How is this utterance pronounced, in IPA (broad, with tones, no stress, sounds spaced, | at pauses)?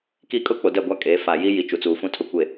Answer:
k i˦ kʼ ʊ˦ k͡p o˨ d ɛ˦˨ ɡʷ a˦ kʼ e˨˦ f a˨ j i˦ j i˨ t͡ʃ u˨ t͡s uː˨ f ũ˦ tʰ ʊ˦˨ kʷ e˦˨